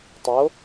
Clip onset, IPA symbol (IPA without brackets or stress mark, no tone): tˤ